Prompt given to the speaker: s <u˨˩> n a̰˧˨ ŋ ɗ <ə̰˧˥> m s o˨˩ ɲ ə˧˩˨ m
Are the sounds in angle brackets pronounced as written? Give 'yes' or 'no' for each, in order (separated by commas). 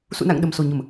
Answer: no, no